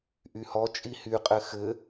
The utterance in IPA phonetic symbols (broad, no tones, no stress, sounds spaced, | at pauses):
ʔ y h ɔ t͡ʃʼ i h y qʼ ɘ x ɘ